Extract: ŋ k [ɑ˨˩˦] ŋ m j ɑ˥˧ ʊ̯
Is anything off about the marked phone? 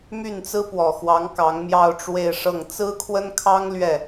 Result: yes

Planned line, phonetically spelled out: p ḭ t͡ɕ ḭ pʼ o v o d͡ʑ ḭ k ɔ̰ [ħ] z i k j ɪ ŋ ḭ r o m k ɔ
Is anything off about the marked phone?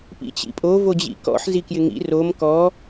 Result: no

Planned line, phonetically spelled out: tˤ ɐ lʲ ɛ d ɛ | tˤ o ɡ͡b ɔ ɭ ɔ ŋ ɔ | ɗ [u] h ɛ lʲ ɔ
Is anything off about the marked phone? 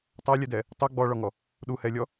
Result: no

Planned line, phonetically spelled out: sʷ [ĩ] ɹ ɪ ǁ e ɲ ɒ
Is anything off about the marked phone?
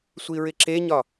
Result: yes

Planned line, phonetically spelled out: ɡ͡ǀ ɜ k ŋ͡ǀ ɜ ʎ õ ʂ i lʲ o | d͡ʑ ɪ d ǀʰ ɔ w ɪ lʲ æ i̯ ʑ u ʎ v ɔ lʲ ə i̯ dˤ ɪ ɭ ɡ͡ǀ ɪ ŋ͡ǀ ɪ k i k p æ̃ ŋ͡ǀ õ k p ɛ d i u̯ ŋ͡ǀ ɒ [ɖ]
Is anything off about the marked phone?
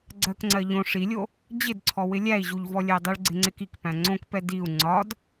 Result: yes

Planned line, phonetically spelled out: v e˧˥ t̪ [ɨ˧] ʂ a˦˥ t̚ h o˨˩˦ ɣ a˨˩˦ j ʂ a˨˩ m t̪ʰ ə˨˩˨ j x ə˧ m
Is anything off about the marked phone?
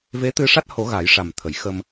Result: no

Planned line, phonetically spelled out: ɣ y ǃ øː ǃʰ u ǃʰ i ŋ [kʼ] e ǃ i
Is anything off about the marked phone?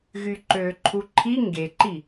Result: yes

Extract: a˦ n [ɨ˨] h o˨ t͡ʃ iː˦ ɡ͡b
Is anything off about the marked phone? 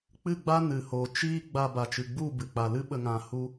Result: no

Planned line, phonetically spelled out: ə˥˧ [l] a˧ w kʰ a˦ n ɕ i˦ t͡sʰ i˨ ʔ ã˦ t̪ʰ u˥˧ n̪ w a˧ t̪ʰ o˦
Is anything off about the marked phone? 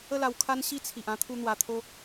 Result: no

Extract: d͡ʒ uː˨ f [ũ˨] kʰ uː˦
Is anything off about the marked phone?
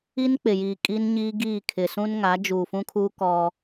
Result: yes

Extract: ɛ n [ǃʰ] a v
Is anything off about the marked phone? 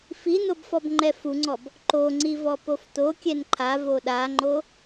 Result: no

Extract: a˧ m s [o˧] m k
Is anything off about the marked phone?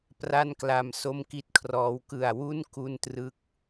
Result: yes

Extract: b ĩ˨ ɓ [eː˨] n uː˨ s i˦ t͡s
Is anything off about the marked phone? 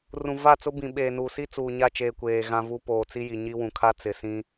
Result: no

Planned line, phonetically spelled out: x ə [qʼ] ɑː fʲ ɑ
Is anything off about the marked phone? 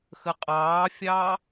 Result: no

